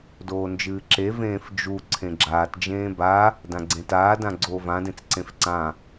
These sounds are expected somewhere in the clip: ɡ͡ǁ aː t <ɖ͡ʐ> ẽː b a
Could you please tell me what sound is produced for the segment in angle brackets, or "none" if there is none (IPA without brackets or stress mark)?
d͡ʒ